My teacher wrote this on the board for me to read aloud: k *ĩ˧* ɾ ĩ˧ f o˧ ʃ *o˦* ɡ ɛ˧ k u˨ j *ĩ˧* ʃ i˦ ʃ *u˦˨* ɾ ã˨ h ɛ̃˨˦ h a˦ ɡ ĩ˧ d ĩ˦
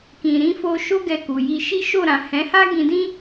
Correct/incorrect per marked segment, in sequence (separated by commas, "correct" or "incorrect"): incorrect, correct, incorrect, incorrect